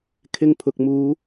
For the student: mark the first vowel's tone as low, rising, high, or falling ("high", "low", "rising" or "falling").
low